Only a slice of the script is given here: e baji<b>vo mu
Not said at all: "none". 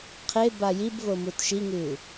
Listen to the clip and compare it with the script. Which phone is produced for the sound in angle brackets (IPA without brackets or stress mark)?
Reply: b